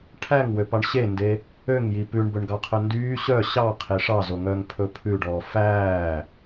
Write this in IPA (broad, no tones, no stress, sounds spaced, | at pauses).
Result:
ʈʰ æ ŋ w ø p ɑ ɳ ɕ e n d e | ø ŋ j i p ʉ ɳ b ɵ ɳ ɡ ɑ qʰ œ n d yː ɕ œ ɕ ɑ qʰ e ʂ ɑ z o ŋ œ ŋ pʰ ɵ pʰ ʉ ɖ ɔː f æː